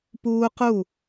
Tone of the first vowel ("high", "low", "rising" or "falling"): high